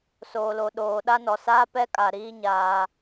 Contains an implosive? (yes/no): yes